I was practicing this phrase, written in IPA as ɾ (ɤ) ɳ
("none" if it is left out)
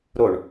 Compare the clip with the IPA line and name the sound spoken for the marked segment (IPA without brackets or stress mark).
o